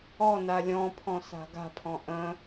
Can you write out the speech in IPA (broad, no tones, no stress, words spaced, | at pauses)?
ɔna lʲɔ̃pʰɔ̃sa̤ ɡa̤pʰɔ̃ ʔə̃